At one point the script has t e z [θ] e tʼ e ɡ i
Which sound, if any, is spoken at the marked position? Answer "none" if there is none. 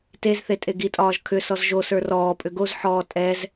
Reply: θ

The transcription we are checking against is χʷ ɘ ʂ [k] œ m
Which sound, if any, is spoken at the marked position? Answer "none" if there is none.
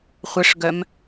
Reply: ɡ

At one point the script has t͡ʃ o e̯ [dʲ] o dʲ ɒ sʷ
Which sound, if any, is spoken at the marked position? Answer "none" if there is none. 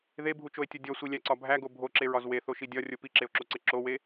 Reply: tʲ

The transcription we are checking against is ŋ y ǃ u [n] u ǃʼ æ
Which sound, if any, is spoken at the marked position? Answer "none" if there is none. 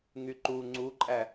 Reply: ŋ͡ǀ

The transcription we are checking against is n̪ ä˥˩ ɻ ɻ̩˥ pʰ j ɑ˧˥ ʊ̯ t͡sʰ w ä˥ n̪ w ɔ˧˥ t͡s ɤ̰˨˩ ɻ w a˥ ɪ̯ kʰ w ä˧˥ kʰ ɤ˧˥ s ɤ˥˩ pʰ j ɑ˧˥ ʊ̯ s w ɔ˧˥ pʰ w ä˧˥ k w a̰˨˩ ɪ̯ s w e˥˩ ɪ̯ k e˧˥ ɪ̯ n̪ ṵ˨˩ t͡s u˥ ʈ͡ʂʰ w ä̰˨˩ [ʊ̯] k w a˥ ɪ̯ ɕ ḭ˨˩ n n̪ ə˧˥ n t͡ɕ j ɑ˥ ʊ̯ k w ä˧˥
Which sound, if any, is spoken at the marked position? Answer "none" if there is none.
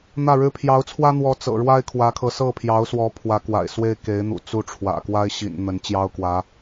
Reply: none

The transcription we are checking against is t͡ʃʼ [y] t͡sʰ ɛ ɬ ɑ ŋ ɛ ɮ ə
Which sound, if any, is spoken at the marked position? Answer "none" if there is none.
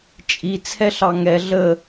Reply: i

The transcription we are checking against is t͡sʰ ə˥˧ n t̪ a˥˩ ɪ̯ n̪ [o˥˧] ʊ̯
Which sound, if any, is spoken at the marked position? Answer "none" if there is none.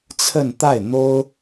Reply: o˥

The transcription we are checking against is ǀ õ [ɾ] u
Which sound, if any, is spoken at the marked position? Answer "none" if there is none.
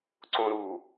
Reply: ɾ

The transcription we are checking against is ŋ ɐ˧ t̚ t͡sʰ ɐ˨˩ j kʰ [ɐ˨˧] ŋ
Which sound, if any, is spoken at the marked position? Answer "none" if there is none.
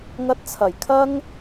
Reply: ɐ˥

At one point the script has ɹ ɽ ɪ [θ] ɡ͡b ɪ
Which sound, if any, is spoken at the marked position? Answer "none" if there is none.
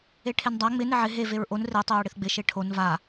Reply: θ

